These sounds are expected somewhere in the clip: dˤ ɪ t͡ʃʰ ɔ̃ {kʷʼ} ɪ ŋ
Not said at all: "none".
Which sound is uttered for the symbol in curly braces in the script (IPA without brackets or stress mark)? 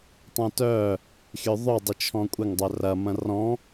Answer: kʷʼ